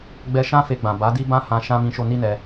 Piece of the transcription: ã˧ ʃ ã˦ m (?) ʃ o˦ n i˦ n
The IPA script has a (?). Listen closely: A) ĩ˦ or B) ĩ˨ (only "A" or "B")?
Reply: A